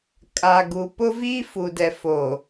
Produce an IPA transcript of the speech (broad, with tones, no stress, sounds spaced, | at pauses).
kʼ a˨ ɡ u˨ p ʊ˦ v iː˦ f u˨ d ɛ˨ f o˨